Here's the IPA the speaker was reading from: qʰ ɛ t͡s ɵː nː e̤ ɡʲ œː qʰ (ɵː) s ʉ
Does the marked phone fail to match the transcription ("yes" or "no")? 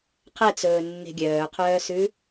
yes